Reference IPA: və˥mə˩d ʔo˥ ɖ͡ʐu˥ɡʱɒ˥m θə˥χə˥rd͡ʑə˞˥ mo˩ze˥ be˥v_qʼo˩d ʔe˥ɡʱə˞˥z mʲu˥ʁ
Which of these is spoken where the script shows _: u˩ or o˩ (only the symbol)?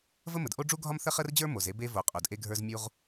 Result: o˩